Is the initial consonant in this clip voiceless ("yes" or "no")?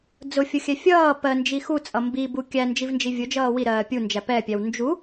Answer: no